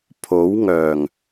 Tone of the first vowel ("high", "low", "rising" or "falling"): rising